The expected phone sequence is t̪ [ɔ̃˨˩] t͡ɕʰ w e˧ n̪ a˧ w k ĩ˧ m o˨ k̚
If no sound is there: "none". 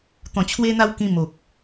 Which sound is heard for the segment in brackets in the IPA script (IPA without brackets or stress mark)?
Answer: ɔ̃˨˩